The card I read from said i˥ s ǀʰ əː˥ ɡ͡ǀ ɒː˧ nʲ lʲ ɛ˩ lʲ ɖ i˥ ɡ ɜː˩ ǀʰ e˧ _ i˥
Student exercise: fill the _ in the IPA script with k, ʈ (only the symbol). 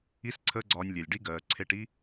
ʈ